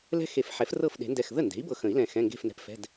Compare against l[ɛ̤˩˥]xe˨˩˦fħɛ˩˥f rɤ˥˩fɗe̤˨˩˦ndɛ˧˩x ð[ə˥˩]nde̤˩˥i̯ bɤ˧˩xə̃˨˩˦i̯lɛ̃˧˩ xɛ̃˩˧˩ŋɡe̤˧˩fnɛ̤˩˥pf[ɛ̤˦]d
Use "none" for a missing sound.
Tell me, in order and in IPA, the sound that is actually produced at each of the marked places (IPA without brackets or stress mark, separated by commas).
ɛ̤˦, ə˥˩, ɛ̤˩˧˩